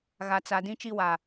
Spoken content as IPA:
ɣa˨t͡sa˨ dĩ˦t͡ʃi˦wa˨

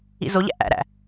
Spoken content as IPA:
ḭzoʎæ̰ ʔæ̰ɾæ̰

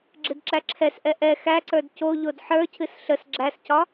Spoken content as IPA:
ɡ͡ǁɨdǁæǁʰɛsʔɛ ʔɛ xæǀə˞d coʎod ħə˞cʰɨs ɬəs ɡ͡ǁæscɒ

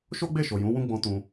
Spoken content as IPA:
ʃo˦ɡ͡be˦˨ʃo˨ jũ˨˦wũ˦ ɡ͡bɔ̃˦tũ˧

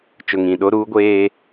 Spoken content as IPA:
t͡ʃʊ˨ŋĩ˨ ɗo˦ɾuː˦ɡʷeː˦

